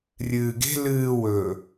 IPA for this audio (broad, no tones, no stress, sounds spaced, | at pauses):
rʲ ɨː ɡ e̤ l ɨː w ɵː